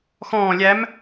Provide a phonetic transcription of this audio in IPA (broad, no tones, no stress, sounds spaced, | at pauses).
x ɔ̃ː lʲ æ m